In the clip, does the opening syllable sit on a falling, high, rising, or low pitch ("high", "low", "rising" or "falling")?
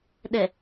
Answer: low